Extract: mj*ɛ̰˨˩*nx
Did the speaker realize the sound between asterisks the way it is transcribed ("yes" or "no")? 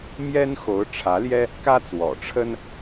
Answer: no